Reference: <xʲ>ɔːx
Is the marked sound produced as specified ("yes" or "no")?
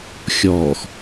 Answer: yes